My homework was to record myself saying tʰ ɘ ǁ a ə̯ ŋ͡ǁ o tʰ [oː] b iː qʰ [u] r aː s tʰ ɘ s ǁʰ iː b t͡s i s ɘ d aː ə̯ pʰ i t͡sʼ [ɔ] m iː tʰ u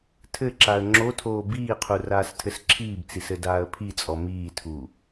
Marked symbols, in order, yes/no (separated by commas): yes, yes, yes